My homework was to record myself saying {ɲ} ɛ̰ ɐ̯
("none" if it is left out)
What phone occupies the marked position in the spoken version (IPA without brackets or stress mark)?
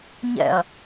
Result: ɲ